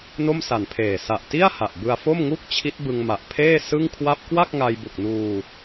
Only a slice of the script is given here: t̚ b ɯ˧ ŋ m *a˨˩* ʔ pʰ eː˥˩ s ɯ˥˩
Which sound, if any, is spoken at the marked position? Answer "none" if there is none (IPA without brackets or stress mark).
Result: a˨˩